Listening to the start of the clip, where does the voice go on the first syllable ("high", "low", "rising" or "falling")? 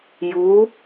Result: rising